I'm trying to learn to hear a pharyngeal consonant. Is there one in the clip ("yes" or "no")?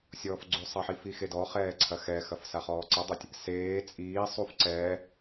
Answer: yes